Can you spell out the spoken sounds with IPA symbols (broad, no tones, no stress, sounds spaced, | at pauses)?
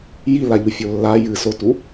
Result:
j i l a ʎ u fʲ o lː a j ɨ s o t u